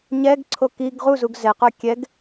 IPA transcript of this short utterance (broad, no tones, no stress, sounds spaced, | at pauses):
ɲ ɛ ɡ ǀʰ o k i ɡ ʁ u z u ɡ z ɛ q œ kʲ ɛ ɡ